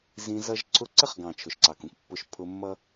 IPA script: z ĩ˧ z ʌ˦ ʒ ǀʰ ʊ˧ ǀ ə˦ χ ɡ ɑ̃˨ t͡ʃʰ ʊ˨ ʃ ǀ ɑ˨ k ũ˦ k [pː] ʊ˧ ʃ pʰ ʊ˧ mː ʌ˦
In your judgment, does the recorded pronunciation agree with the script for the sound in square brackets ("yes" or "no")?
yes